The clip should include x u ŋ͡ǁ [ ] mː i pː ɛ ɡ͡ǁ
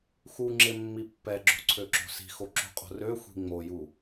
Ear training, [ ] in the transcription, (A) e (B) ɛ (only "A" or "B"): A